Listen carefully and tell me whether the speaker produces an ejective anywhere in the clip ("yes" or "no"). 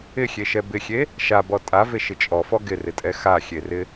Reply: yes